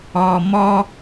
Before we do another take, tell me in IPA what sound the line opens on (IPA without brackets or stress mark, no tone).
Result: ɔ